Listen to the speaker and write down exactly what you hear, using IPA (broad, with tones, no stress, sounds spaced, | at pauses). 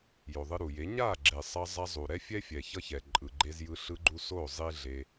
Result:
j o˨ ðˤ ɯ˧ ɾ u˨ j e˨˦ ɲ a˦˨ ɡ͡ǁ e˨ sˤ ʌ˧ zˤ a˧ zˤ u˨ ɾ ɛ˦ fʲ ɛ˦ fʲ ɛ˨ ç ʌ˦ ç ɛ˨ ǃʼ ɯ˨ ɡ͡ǃ e˧ z j ɯ˧ ɬ ɯ˧ ɡ͡ǃ u˧ s o˦˨ zˤ i˦ ɮ e˧